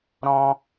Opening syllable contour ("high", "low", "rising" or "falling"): high